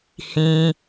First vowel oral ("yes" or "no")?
no